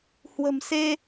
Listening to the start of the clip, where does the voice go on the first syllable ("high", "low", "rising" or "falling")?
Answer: low